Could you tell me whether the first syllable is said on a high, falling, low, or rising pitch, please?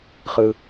low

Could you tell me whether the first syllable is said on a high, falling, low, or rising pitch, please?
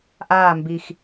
falling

